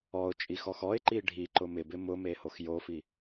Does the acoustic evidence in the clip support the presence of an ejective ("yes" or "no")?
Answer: yes